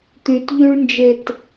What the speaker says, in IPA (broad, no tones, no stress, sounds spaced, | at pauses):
t̪ y t ʎ y ɭ n d͡ʒ e t